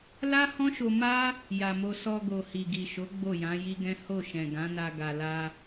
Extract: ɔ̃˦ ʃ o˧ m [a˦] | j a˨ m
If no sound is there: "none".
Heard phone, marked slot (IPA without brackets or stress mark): a˦